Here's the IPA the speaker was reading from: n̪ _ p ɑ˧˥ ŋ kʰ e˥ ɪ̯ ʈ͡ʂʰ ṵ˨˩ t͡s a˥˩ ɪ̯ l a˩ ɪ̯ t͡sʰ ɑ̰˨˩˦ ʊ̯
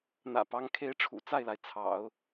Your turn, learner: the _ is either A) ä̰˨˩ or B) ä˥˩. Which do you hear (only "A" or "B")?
A